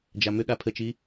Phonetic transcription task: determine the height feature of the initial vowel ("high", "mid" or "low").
low